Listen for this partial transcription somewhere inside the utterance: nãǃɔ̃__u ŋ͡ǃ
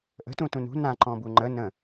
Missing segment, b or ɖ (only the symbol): b